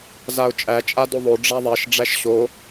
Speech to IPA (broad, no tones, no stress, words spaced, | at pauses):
zaʊ̯t͡ʃʼæ t͡ʃʼadoðˤo ɖ͡ʐaðˤɛʃ ɖ͡ʐæʃɕo